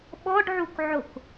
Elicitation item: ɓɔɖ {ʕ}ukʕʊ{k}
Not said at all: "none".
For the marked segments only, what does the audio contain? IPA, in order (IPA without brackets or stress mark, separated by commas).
ʕ, k